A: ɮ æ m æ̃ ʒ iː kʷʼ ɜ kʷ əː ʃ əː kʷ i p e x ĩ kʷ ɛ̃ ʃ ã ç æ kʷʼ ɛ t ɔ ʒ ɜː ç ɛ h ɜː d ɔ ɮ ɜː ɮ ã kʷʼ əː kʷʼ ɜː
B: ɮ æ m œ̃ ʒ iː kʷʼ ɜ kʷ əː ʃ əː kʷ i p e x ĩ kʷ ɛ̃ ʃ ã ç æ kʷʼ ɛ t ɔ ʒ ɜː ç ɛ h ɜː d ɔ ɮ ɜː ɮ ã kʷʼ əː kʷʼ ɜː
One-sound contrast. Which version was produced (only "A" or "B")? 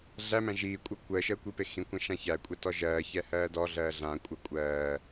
A